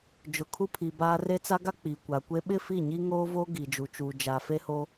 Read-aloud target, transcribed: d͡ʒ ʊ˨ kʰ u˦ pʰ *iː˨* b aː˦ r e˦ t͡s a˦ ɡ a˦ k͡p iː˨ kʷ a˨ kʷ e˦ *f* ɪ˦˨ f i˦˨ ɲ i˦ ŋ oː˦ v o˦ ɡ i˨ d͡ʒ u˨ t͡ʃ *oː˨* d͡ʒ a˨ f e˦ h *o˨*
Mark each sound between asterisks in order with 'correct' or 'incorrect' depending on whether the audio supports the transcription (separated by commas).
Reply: incorrect, incorrect, incorrect, incorrect